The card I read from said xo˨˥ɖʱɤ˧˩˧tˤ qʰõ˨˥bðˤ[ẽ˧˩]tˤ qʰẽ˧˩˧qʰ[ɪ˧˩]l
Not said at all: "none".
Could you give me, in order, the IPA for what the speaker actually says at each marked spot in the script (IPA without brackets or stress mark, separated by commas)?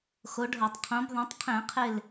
ẽ˨˥, ɪ˧˩